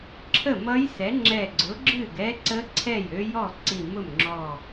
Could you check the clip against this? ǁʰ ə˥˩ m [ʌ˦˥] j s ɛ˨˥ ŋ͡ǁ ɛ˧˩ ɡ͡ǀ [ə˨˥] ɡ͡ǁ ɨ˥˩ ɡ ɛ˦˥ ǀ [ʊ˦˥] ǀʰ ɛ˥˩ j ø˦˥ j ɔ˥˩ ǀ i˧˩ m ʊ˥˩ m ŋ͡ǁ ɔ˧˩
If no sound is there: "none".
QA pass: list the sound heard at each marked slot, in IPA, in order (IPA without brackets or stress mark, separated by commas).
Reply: ʌ˦˥, ʊ˨˥, ə˦˥